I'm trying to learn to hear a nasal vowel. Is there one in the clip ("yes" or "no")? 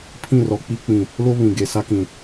yes